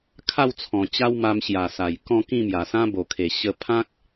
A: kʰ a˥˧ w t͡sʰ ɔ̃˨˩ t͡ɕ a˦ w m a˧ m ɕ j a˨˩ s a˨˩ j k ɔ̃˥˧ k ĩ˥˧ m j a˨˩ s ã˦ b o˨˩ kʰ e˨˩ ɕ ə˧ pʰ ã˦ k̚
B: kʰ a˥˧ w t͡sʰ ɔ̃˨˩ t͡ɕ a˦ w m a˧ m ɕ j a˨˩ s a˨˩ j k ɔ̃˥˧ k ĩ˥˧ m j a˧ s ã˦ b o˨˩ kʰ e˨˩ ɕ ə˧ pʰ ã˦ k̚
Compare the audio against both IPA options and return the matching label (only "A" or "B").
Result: A